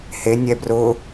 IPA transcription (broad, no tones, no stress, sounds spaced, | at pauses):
h e nʲ ɛ b r ʊ